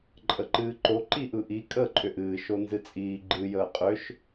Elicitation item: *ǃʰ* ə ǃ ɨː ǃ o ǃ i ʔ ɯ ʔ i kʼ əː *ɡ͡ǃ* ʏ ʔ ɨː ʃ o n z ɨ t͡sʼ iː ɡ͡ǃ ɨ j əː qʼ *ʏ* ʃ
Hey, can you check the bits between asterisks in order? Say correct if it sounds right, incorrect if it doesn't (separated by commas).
incorrect, incorrect, correct